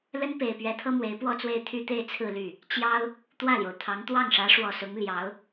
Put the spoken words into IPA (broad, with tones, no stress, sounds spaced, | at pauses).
l ə˥ n p e˨˩ ɪ̯ p ɥ ɛ˧˥ t̪ʰ ɤ˥ m w e˧˥ ɪ̯ p w ɔ˥˧ t͡s w e˥˧ ɪ̯ t̪ʰ y˥˧ t̪ e˥˧ ɪ̯ t͡sʰ ɹ̩˥˧ l y˥˩ | t͡ɕ j ɑ˥ ʊ̯ | t̪ w ä˥˩ l j o˩ ʊ̯ t̪ʰ ɑ˧˥ ŋ t̪ w ɑ˥˩ ŋ ʂ ä˧˥ ʂ w ɔ˨˩ s ʊ˧˥ ŋ l j ɑ˧˥ ʊ̯